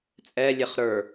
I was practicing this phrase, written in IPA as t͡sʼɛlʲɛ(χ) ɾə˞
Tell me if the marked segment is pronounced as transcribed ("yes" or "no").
yes